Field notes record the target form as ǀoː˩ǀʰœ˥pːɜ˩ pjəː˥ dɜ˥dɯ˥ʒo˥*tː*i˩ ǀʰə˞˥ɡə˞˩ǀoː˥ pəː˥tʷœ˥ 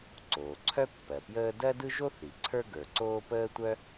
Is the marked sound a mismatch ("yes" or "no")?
yes